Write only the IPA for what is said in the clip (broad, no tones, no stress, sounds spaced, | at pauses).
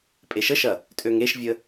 pʼ e ʃ ə ʃ ɐ | tʼ ø ŋ e ʃ vʲ ə